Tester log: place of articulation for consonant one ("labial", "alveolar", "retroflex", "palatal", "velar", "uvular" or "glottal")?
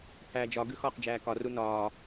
labial